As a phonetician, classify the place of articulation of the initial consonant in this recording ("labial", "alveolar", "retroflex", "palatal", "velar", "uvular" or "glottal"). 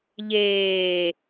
palatal